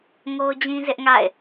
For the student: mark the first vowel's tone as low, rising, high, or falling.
high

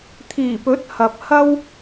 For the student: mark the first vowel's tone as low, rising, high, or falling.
low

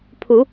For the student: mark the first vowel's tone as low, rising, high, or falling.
rising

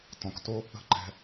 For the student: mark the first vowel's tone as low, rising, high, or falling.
low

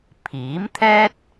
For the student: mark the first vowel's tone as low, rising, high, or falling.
rising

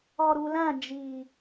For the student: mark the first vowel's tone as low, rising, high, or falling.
low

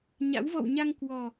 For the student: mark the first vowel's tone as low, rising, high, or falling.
rising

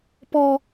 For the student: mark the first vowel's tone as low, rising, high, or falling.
high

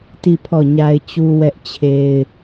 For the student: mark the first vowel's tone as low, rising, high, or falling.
falling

